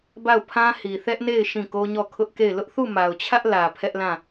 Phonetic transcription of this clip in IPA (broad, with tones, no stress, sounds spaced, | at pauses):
b a˦˨ ʊ̯ pʰ ã˦ h i˨ θ ɛ˦ ʔ n e˦˨ ɪ̯ ʃ ĩ˦˨ k o˦ ɲ ɔ˦˨ kʰ ʊ˦ ʔ k e˦˨ ɪ̯ l ʊ˦ ʔ θ u˦˨ m a˨ ʊ̯ t͡ɕʰ ä˦ ʔ l ä˨ pʰ ɛ˦ ʔ l ã˦˨